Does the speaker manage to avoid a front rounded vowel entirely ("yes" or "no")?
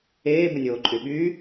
no